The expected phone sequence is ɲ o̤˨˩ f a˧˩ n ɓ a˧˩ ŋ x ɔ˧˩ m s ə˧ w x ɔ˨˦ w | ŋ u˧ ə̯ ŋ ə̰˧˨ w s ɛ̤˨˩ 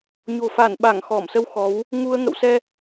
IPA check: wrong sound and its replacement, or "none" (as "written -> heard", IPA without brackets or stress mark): ɛ̤˨˩ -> ɛ˧